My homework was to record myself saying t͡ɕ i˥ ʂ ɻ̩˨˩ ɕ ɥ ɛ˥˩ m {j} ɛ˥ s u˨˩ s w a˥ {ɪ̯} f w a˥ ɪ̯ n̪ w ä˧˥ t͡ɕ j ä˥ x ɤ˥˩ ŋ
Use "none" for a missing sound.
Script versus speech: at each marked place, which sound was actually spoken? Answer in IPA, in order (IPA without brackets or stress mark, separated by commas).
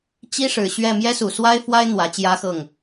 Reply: j, ɪ̯